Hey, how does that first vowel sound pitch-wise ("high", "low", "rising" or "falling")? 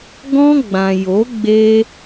high